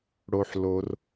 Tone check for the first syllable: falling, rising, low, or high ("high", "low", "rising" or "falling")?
high